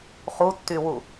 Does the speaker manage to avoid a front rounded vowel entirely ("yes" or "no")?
no